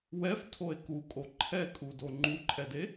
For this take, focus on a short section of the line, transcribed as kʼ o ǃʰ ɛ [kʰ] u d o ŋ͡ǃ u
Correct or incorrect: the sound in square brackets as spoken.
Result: incorrect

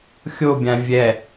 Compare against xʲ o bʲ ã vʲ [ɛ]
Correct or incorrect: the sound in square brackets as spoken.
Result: correct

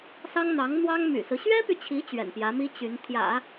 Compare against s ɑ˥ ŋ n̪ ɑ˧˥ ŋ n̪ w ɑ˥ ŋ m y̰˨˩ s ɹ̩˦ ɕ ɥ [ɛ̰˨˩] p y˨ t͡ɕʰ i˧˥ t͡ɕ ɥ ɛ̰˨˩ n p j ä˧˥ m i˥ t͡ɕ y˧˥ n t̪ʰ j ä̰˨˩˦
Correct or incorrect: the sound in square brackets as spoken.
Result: incorrect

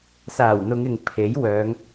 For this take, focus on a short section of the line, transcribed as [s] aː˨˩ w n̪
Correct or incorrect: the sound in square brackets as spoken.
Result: correct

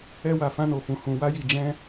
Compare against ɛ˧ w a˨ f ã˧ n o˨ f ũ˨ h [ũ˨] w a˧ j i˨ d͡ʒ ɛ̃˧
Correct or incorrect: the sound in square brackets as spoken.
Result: correct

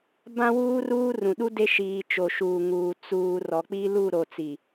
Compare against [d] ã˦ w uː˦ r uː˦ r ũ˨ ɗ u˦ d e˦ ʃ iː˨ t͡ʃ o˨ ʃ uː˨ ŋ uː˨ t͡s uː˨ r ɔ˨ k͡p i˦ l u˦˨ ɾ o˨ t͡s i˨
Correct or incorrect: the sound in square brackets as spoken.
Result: incorrect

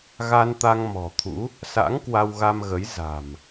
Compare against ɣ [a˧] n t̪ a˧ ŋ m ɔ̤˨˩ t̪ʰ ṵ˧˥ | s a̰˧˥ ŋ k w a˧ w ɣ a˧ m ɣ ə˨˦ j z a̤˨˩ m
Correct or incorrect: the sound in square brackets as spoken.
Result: correct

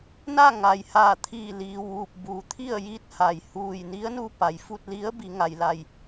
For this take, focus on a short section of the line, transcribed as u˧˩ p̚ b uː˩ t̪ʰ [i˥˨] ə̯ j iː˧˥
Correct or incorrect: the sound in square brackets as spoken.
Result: correct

